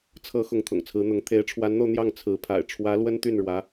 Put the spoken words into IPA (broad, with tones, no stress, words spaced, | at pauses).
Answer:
t͡sʰɤ˧˥ xʊ˧˥ŋt̪ʰʊ̰˨˩ŋt͡sʰɹ̩˧˥n̪ʊ˧˥ŋ t̪ʰe˧˥ɪ̯ʈ͡ʂʰwa˧˥nn̪o˧ʊ̯ n̪jɑ˥˩ŋt͡sʰɹ̩˧˥ pʰa̰˨˩ɪ̯ʈ͡ʂʰwä˧˥ lwə˥nt̪y˥˩nɻwä˧˥